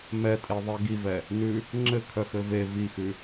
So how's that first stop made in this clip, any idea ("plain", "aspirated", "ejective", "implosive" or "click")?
ejective